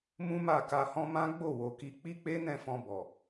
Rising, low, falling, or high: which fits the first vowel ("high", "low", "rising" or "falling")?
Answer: high